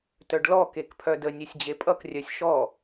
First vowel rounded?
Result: yes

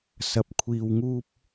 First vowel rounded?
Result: no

